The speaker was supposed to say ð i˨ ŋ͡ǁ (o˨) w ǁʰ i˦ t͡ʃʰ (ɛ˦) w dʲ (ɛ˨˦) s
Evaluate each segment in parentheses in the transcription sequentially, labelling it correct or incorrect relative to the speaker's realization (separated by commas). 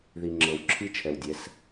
incorrect, incorrect, correct